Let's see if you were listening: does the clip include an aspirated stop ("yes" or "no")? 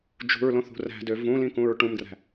no